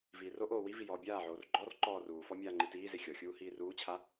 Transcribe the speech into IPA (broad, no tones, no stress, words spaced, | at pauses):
viːroʔoː wivi jɔːbʲaːʕoːr ɡ͡ǃɔr ǃɔːruːfɔ mʲaːŋ͡ǃitiːze xʲɔxʲuː hiːruːt͡ɕʰa